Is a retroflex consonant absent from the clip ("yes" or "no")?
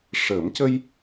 no